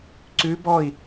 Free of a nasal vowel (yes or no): yes